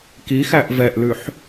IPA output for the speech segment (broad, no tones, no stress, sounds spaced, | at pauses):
k i x æ ʔ v ɛ ʔ l ʉ ħ